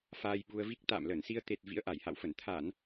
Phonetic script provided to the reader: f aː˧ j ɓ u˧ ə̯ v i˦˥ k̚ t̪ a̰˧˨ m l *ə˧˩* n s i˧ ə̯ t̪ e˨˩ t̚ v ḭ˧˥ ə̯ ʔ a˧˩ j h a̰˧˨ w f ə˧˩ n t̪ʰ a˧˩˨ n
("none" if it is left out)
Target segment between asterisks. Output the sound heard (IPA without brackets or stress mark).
ə˧˩